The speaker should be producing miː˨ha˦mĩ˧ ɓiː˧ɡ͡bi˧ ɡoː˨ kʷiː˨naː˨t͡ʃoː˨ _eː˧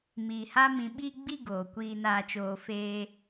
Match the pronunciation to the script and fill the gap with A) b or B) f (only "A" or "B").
B